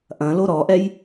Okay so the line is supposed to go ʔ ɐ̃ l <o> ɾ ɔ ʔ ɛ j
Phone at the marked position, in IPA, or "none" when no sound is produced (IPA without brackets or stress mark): o